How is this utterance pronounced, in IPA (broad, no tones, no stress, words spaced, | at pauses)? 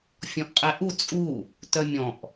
fʲɔ̃ʔqʼɛʔu t͡sʼu | tœmʲɔ̃ʔ